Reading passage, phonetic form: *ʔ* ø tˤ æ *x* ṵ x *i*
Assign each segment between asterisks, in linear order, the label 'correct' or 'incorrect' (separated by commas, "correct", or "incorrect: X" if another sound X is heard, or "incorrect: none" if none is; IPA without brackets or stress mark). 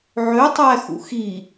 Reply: incorrect: ʕ, correct, correct